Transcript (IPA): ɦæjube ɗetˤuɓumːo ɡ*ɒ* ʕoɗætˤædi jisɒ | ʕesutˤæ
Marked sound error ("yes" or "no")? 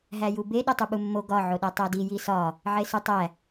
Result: no